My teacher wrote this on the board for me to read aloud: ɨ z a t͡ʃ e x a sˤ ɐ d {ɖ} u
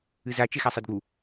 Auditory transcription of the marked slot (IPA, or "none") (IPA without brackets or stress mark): ɡ